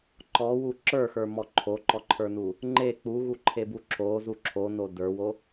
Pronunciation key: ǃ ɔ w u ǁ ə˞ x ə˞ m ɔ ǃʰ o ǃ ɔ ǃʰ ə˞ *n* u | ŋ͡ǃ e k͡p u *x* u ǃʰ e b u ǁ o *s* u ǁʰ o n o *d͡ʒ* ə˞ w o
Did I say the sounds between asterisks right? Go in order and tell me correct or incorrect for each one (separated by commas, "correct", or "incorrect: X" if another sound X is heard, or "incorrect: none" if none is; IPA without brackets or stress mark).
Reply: correct, incorrect: ɣ, incorrect: z, incorrect: d